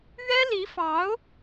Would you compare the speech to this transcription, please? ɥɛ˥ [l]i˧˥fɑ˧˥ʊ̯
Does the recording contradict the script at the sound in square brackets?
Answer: no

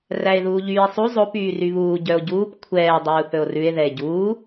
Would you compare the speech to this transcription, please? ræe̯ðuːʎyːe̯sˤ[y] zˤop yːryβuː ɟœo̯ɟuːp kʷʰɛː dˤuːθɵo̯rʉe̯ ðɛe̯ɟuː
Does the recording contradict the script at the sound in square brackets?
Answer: yes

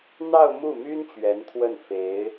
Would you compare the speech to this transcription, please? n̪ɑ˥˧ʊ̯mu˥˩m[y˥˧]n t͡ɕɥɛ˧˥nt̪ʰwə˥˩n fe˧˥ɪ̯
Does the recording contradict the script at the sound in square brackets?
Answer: yes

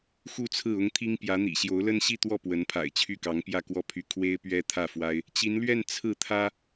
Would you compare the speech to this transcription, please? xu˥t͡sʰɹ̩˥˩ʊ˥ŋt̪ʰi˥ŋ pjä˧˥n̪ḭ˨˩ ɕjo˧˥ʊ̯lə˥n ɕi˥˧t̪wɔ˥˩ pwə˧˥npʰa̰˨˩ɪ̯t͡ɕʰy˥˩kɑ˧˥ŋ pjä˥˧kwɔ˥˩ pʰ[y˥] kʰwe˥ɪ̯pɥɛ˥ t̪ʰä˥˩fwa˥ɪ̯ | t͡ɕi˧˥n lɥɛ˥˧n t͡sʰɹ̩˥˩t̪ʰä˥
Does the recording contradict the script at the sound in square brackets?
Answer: no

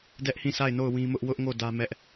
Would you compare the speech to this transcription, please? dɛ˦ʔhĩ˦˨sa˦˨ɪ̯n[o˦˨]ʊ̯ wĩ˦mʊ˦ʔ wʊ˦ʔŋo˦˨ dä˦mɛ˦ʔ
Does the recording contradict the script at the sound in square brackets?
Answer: no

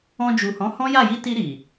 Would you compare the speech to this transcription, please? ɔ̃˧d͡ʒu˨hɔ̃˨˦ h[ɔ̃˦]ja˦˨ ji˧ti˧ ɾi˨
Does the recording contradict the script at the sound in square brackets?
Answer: no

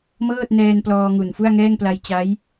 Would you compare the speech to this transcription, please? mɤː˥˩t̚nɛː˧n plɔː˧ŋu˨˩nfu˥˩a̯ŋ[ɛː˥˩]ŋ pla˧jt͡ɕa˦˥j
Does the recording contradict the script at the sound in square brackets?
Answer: no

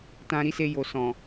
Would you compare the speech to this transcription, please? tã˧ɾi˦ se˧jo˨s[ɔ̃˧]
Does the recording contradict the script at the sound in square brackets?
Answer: yes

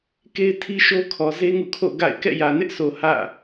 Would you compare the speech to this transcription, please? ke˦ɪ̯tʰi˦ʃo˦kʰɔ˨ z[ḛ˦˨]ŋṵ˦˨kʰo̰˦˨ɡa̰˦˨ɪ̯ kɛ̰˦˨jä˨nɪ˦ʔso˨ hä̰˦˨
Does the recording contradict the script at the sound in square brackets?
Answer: yes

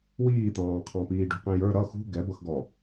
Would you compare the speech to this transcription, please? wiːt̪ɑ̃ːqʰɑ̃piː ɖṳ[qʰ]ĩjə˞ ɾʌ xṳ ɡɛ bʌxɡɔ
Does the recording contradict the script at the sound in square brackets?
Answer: yes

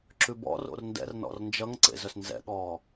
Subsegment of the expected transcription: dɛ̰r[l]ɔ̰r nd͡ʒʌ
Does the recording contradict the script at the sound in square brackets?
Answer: yes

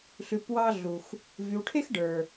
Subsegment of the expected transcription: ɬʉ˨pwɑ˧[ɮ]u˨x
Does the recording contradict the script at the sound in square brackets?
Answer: no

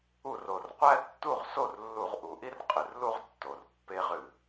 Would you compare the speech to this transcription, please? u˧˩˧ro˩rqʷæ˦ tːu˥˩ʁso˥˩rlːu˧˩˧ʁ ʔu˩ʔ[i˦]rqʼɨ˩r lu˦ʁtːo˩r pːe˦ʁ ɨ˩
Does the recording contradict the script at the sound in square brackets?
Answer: no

